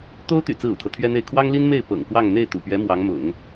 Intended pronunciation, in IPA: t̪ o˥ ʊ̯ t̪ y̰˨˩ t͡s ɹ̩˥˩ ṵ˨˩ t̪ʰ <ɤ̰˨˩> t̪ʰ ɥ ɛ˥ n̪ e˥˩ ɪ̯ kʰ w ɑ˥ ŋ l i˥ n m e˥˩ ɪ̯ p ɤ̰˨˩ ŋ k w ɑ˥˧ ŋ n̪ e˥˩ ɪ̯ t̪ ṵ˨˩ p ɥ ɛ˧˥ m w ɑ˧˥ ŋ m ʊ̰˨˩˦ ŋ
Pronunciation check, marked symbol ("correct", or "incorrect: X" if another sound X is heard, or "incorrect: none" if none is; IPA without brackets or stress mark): incorrect: ɤ˦